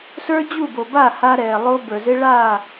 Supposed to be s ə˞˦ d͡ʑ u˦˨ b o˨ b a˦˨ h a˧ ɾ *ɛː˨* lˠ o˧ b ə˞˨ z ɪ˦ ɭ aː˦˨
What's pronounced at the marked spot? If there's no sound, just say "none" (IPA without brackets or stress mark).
ɛː˨